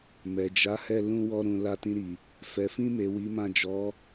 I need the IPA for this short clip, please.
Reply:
m ɛ˨ d͡ʒ a˨˦ h ɛ˦˨ l ũ˧ w ɔ˧ ɾ ũ˨ l a˧ t ĩ˧ ɾ i˨ | f ɛ˨ f ĩ˧ m e˨ w i˨˦ m ã˦˨ d͡ʒ ɔ˨˦

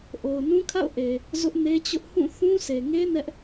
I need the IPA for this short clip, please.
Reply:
ʔ o˨ ʊ̯ n ũ˦ kʰ a̰˦˨ ʊ̯ ʔ e˨ | z ʊ˦ ʔ n e˦ t͡ɕ ʊ˦ ʔ h ũ˦˨ θ ũ˦ s e˨ ŋ e˦ n ɛ˦ ʔ

